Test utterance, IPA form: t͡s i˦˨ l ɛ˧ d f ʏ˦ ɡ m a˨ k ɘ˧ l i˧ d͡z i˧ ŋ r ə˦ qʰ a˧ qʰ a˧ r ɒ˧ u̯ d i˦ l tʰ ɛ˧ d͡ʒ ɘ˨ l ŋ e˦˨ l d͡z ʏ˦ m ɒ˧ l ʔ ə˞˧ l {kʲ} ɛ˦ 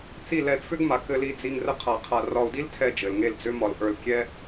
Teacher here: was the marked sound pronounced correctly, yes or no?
yes